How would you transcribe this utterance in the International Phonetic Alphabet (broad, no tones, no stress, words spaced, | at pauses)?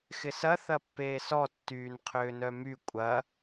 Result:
xɪsɐ θɐpːeːsɔ tːyːnqʰʏːnœmy kʷʼɐ